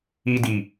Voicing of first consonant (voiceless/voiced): voiced